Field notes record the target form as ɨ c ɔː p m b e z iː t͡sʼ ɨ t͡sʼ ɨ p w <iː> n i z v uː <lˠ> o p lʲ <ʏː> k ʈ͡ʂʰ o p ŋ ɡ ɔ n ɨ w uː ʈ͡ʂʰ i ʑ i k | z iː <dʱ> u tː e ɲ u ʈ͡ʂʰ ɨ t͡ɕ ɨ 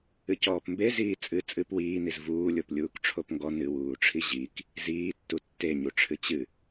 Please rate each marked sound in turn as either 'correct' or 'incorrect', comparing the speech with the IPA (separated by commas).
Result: correct, incorrect, incorrect, incorrect